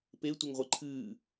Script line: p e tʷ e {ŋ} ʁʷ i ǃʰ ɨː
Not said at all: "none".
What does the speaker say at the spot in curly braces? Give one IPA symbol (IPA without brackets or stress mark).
ŋ